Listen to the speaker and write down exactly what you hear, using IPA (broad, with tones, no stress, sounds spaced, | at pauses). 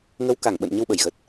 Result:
ŋ ə˨˦ w k a˧˩ ŋ ɓ ə̰˧˨ n ɲ ə˧ w ɓ ə˧˩ j ɣ ə˨˩ t̚